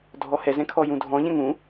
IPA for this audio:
dʱ ɔ h ɛ z ɛ̃ kʰ ɔ j ũ dʱ ɔ̃ ʎ ɛ̃ ŋ ũ

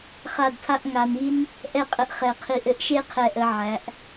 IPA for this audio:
χ a˥˧ d tʰ a˥ ʔ ŋ a˧ n i˥ n | ʔ ɛ˥˧ qʼ ə˧ ʔ χ ɛ˧˩ qʰ i˧˩ ʔ ɘ˥ ʔ ʃ e˥ qʰ ɛ˧˩ ʔ ə˩˧ ʕ æ˩˧ ʔ

